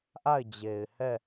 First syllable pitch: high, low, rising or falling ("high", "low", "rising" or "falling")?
falling